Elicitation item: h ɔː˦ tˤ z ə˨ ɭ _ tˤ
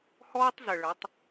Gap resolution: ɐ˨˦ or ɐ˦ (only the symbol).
ɐ˨˦